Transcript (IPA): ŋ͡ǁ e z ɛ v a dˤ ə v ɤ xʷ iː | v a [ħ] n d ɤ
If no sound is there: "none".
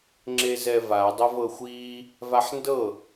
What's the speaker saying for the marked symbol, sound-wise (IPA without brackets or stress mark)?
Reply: ħ